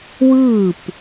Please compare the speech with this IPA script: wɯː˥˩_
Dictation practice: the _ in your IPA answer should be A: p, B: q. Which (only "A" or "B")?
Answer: A